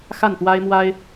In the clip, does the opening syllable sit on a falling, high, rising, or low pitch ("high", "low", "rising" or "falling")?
falling